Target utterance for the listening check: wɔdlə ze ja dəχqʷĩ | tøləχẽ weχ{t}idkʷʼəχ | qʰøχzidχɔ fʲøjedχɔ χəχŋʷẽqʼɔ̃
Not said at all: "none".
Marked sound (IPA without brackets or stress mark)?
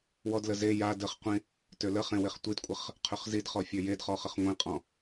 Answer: tʷ